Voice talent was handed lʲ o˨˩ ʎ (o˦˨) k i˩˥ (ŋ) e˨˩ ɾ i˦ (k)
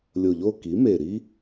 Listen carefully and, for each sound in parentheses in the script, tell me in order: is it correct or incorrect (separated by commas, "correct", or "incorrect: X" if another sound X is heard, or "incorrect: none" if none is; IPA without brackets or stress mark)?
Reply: correct, incorrect: m, incorrect: none